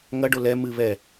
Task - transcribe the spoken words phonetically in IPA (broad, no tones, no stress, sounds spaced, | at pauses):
ŋ ɐ ɖ o l ɛ m ɨ β ɛ